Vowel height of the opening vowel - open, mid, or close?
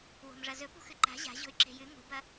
mid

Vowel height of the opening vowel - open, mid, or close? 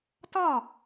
open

